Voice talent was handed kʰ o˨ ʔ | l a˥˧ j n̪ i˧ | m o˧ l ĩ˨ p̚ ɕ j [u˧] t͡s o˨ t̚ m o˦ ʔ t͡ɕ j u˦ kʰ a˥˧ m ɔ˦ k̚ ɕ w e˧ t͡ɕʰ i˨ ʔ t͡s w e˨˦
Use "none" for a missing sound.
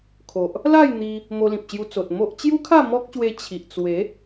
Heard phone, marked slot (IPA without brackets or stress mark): u˧